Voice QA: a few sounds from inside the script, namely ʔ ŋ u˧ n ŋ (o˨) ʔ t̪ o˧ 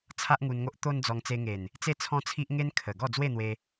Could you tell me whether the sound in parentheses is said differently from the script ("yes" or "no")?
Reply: yes